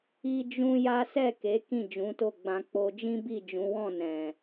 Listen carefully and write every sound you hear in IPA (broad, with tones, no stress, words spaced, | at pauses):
i˦d͡ʒũ˦ja˦ sɛ˦˨ke˨˦ kĩ˦˨d͡ʒũ˨˦to˦˨ɡ͡bã˧ k͡po˧d͡ʒĩ˦bi˦˨ d͡ʒũ˨˦wɔ̃˦˨ nɛ̃˨